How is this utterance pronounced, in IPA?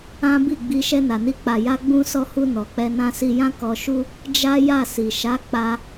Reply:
ã˦ b i˦˨ ɡ͡b i˧ ʃ ɛ˧ n a˨ n i˧ k͡p a˨ j a˧ ɡ͡b ũ˧ s ɔ˧ h u˧ n ɔ˨ k͡p ɛ˧ n ã˧ s i˧ j ã˦ k ɔ˧ ʃ u˦ | d͡ʒ a˦ j a˦˨ s i˨ ʃ a˨˦ k͡p a˧

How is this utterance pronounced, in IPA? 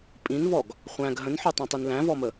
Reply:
pʼ ĩ n v ɔ ɡ | χʷ æ̃ ɡ ɦ ə̃ n ħ o tˤ õ tˤ i n l æ̃ v ɔ m ə

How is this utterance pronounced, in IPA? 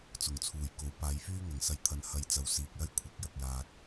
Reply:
t͡s ʊ˨˩ ŋ t͡sʰ uː˨˩ j k o˨˥ w p aː˨˧ j f yː˥ ŋ ɐ˨˩ ŋ s ɐ˨ j t̪ʰ ɐ˨ n h ɐ˧ j t͡s ɐ˨˧ w s iː˨ k̚ l ɐ˥ j kʷʰ ɐ˨˥ k̚ j ɐ˨ k̚ j aː˨ t̚

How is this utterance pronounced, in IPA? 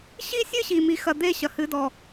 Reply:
ɕ i˦ sʲ ɨ˦ ɕ i˨ m i˨ x ɐ˨ d̪ e˦˨ ɕ ɐ˨ h ɨ˨˦ d ɔ˨

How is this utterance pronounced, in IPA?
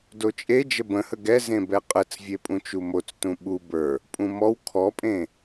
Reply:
d o t͡ʃʼ e d͡ʒ ə b ə̃ h ə ɡ ɛ z ẽ b ɛ qʼ ə t͡s vʲ e pʼ ũ t͡ʃ u m o t͡s t ũ ɓ u b ə˞ | pʼ ũ m ɔ w kʰ ɔ pʼ ẽ

